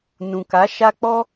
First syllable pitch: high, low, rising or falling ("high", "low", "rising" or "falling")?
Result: low